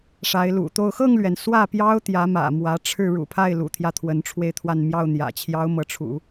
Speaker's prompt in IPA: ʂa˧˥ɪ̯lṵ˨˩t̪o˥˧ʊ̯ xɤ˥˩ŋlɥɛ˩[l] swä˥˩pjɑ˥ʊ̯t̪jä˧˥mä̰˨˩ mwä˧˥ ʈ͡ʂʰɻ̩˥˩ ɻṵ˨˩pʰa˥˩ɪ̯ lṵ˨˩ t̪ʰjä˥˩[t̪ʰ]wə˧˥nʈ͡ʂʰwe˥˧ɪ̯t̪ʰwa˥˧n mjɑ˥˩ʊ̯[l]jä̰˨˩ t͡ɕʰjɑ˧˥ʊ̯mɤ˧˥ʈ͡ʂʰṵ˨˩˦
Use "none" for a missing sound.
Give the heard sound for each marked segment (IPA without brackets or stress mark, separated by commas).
n, t̪ʰ, n̪